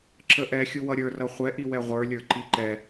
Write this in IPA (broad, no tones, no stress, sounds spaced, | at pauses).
ǁ ə ʔ ɛ xʲ u w ʌ ɾʲ ə˞ r ʌ χʷ ɛ ʔ i w ɛ ʁʷ ə˞ lʲ ə˞ ǃ i ǃ ɛ